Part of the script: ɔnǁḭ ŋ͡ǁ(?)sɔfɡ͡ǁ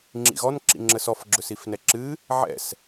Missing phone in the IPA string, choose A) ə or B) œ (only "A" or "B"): A